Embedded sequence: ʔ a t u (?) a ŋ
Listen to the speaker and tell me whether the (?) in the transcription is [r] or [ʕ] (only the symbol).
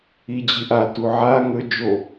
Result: ʕ